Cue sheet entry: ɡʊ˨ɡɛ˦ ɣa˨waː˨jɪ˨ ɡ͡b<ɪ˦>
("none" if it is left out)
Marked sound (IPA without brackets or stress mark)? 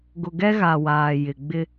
ɪ˦